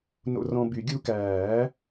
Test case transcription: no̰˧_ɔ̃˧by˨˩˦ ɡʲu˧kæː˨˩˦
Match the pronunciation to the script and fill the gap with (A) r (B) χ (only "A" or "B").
A